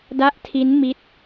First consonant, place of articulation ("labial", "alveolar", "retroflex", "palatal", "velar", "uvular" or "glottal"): alveolar